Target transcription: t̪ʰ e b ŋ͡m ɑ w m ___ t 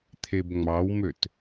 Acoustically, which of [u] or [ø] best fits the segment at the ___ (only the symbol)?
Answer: ø